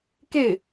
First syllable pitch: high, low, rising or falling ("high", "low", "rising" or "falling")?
falling